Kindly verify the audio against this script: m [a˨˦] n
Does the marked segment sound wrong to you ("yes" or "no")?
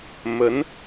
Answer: yes